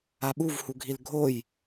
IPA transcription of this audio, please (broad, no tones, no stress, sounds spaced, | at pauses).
a ɓ u v h u ɡʱ i l ɡʱ o j